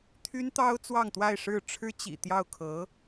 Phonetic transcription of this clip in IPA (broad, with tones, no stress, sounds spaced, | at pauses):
t̪ʰ y˥ n t̪ ɑ˥ ʊ̯ t͡s w ɑ˥˧ ŋ t̪ w a˥˧ ɪ̯ ʂ ɻ̩˥˩ ʈ͡ʂʰ ɻ̩˥ t͡ɕ ḭ˨˩ t̪ j ɑ˥˩ ʊ̯ kʰ ɤ˧˥